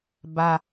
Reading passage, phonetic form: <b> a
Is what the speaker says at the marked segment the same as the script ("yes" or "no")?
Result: yes